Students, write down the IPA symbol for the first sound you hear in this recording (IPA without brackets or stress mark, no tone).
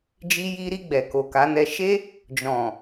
d͡ʒ